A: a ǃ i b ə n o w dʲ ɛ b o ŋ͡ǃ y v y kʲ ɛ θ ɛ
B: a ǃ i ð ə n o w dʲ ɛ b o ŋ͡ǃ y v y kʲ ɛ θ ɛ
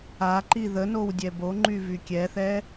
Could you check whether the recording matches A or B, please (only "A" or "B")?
B